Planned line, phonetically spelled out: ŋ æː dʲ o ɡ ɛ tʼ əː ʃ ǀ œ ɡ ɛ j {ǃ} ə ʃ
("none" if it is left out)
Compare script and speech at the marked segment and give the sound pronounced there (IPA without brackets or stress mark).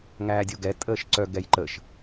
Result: ǃ